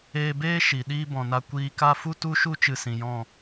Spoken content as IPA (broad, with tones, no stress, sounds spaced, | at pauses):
eː˧ b eː˦ ʃ i˨ ɗ iː˦ b ɔ̃˨ n a˧ kʷ iː˧ k a˦ f u˦ t u˦ ʃ u˦ t͡ʃ ɨ˧ s ĩ˨ j ɔ̃˦˨